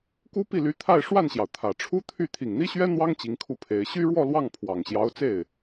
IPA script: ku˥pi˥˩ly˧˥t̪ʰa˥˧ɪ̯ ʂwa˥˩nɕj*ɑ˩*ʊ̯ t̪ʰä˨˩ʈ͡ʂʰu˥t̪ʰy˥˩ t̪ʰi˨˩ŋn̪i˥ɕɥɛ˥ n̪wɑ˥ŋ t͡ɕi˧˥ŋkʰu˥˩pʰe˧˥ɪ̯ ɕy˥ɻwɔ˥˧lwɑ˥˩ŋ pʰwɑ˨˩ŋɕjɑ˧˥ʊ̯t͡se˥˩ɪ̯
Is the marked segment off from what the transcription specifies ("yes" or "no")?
no